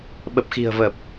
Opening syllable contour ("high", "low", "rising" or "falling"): low